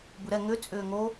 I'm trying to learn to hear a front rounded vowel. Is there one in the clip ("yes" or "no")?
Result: yes